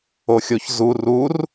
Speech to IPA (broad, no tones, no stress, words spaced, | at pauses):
oxʲoç zu rur